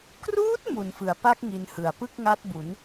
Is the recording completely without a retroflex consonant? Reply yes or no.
yes